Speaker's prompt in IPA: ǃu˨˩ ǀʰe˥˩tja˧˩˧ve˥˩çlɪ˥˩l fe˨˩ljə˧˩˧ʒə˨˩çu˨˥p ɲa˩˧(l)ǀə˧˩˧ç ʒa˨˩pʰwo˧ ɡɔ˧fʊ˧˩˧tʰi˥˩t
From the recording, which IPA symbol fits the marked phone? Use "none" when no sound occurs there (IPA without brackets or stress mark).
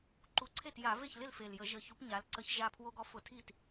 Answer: l